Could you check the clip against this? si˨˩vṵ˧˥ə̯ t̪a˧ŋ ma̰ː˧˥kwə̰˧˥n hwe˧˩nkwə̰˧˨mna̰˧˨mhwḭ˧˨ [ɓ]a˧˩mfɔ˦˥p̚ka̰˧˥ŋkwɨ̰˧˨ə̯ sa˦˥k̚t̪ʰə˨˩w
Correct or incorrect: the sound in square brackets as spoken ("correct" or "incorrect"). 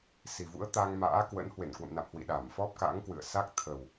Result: incorrect